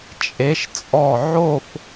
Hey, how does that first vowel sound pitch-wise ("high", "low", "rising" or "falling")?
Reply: rising